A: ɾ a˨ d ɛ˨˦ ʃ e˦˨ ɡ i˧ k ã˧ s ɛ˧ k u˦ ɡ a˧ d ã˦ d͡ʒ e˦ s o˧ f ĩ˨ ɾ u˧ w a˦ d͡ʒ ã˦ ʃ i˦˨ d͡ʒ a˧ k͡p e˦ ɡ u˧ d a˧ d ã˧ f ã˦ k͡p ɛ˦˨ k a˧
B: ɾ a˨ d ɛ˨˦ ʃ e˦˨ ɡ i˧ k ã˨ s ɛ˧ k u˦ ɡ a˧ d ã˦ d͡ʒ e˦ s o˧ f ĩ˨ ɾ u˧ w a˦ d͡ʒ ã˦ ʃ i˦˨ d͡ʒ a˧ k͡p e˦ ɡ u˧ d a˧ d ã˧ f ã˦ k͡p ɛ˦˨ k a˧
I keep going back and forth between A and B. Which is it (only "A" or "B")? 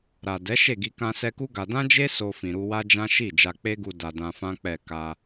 A